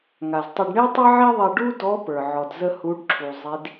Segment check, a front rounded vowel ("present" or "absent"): absent